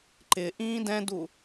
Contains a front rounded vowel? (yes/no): no